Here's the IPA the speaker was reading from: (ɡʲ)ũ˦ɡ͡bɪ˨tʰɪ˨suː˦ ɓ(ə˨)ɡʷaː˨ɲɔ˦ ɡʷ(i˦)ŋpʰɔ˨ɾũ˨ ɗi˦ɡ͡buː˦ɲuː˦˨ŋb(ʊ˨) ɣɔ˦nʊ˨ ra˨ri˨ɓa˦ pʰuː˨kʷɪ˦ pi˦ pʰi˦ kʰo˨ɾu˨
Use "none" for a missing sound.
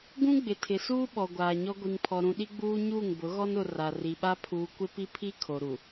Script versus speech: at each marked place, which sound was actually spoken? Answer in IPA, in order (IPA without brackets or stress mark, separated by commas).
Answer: ɡ, ɔ˨, i˨, ʊ˨˦